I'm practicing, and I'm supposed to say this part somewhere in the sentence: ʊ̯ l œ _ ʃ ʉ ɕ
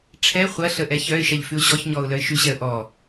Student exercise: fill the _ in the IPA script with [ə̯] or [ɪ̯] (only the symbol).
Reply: ɪ̯